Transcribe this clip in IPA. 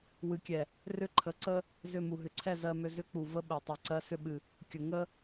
w ɨ˨ kʲ ɛ˨ | r ʏ˦ ǃʰ ə˨˦ ǀ ə˦ | z ʏ˦˨ m u˨ ɦ ʏ˨ ǀʰ ɛ˦˨ z ɜ˦ m ʏ˦ z ʏ˦ k͡p u˨ v ə˦ ɓ ɛ˨ tˤ ɨ˨ ǀ ɜ˦ s ʏ˦ ɓ ɨ˨ | kʲ ə˨ ŋ ə˦

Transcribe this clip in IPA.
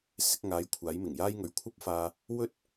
s ɪ˧ k̚ ŋ aː˨˧ j kʷʰ aː˨˥ j m ɪ˨˩ ŋ j aː˥ j ŋ ɵ˨˧ ɥ kʷʰ ɐ˥ p̚ f aː˧ | w ɵ˥ t̚

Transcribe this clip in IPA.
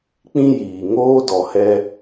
k͡p ĩ˦ j iː˨ ŋ oː˦ d ɔ˨ h ɛ˧

